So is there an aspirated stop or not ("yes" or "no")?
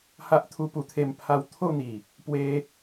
yes